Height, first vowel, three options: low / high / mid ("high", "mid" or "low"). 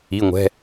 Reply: high